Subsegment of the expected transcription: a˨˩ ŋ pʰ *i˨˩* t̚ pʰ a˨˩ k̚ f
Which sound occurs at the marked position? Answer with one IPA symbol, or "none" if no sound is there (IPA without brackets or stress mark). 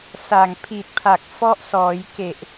i˨˩